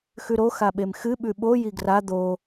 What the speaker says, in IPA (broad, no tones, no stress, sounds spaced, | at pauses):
x ʉ ɾ o x a ɓ e m x ɨ ɓ ʉ ɓ o j i ɡ r a d̪ o